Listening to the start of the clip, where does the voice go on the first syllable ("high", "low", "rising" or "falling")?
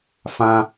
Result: high